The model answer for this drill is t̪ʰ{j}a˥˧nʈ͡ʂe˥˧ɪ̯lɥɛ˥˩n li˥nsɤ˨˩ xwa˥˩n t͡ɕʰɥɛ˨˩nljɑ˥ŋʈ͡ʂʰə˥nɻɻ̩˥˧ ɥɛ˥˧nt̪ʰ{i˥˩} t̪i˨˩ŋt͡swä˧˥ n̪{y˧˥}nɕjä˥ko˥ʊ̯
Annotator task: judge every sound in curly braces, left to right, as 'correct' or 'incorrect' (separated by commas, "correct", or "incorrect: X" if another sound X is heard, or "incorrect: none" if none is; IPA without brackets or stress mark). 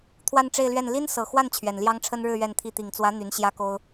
incorrect: w, correct, correct